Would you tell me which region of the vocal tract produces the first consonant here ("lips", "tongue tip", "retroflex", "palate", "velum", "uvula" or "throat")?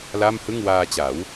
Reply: tongue tip